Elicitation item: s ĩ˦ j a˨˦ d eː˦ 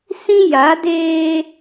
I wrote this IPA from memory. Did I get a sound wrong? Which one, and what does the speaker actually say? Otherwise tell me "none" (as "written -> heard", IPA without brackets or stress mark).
none